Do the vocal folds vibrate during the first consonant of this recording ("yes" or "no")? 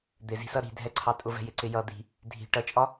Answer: yes